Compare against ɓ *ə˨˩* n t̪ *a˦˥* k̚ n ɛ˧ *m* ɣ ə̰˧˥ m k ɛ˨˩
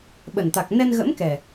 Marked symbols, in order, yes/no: yes, no, no

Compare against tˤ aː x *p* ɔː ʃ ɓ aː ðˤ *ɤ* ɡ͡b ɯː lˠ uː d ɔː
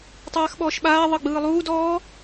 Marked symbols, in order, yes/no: no, yes

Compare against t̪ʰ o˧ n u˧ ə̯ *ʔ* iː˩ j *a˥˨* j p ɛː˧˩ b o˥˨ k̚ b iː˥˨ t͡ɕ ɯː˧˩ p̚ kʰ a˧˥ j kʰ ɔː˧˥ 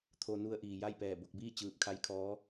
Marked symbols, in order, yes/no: yes, yes

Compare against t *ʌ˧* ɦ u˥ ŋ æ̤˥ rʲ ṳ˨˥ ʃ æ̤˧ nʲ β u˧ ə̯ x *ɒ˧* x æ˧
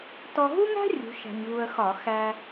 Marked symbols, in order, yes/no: no, no

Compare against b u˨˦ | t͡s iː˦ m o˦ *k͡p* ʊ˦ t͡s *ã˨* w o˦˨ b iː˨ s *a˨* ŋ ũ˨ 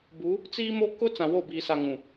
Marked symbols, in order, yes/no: no, yes, yes

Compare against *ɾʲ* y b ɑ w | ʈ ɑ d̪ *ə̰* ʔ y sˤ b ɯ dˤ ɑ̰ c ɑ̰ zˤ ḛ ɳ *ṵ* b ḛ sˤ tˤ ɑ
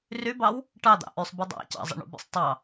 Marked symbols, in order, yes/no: no, no, yes

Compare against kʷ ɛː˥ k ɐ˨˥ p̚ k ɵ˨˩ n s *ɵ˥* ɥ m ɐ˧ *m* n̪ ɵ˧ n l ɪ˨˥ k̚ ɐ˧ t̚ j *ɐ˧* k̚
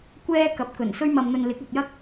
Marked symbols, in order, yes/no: yes, yes, no

